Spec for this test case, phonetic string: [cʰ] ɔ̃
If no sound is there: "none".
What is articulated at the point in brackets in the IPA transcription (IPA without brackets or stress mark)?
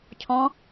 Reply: cʰ